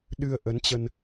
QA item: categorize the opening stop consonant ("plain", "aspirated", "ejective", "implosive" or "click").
implosive